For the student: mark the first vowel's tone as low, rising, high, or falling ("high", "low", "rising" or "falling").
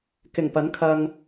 low